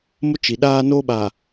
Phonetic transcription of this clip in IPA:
m ʊ˦ t͡ʃ i˨ ɗ aː˦ n oː˦ ɓ aː˨

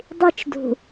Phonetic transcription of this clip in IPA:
dˤ i t͡ʃ d ṳ

